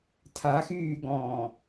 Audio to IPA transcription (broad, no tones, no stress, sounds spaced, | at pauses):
tʰ a x yː ɡ ɔ̃ː